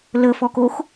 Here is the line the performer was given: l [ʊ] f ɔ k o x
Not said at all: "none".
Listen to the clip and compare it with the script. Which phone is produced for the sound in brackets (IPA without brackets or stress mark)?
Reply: ə